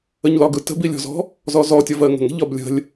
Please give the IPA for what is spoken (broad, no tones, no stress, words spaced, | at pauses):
əɲlɒɡɯ tə̤bilʲɔ̤zɔ̤ | zɔzɔ tʲɒvɜŋə̤ŋə̤ ʎɒblʲə̤lʲ